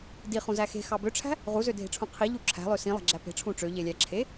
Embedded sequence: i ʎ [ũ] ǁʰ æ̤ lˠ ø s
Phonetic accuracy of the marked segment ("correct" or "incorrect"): incorrect